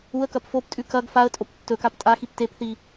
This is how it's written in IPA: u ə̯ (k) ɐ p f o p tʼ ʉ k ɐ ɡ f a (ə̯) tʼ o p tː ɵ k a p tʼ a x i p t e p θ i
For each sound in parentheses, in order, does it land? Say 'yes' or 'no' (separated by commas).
yes, yes